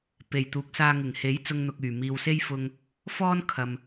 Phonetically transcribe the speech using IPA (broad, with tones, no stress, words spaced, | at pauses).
pe˨˩jt̪uː˨˥k̚saː˧ ŋɪ˨˩ŋhe˨˥j t͡sʊ˧ŋn̪ʊ˨k̚ yː˨˩ miː˨wse˥jfʊ˧ŋ | fɔː˥n kʰɐ˨m